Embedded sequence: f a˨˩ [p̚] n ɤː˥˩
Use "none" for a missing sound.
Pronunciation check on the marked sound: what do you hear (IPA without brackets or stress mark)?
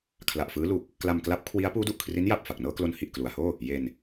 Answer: k̚